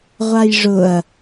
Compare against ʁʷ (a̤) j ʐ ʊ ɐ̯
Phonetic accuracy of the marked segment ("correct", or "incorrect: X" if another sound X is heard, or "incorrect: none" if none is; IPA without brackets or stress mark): incorrect: a